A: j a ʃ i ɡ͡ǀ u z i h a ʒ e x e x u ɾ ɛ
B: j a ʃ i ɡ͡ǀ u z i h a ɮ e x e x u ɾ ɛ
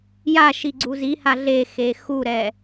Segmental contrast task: B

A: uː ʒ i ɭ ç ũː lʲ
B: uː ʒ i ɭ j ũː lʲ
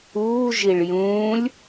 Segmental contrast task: B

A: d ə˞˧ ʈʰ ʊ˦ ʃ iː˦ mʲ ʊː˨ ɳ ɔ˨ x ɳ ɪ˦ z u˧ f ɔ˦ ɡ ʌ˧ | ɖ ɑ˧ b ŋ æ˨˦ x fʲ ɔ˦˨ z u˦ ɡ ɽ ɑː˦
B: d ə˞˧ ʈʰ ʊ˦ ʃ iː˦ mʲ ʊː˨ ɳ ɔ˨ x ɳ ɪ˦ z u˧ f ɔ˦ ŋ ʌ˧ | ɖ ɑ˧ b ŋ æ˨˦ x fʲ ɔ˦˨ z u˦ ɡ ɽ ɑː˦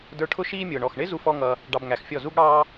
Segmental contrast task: B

